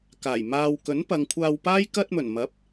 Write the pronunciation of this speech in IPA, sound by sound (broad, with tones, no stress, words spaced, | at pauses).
kaː˨˩j maː˨wkɵ˨˥n pɐ˨˧ŋkʷʰaː˧wpaː˥j kɐ˧t̚mɵ˨˩nmɐ˨˥p̚